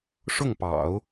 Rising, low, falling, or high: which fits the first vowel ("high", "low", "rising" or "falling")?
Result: falling